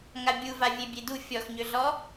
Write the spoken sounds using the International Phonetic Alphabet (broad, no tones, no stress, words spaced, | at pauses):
ŋabʲuva vʲebʲedu fʲɔxɲøɮɔ